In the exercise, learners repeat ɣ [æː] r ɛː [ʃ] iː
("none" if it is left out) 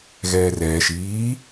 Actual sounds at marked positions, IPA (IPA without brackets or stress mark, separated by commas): ɛː, ʃ